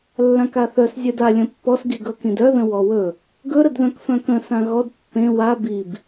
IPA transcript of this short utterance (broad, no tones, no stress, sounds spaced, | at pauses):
lː ã k a θ œ s zʲ œ d a lʲ ə̃ pː ɔ s ɡ i ɡ ɤ k ĩ d œ ð ə̃ w ɔ w ɵ | ɡ ɵ ɾ ə d ð œ̃ k f œ̃ k ə̃ s ã ɣ ɔ d pː ẽ w a b i b